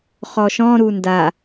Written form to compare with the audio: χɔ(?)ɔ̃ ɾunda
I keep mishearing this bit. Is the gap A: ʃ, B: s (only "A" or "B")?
A